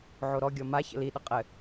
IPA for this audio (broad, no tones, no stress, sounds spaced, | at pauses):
ʕ o ɾ ɔ ɡʲ ɔ m a ç ə̰ l i ɗ ə qʼ ɘ